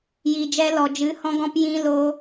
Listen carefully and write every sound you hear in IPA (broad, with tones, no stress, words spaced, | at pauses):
jiː˨d͡ʒɛ˧lɔ˨ d͡ʒɨ˨˦hɔ̃˧ɡɔ̃˧p jĩ˧ lo˦